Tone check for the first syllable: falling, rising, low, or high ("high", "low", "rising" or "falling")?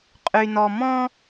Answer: low